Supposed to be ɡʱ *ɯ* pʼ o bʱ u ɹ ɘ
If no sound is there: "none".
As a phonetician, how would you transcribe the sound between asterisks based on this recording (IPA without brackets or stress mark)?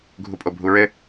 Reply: u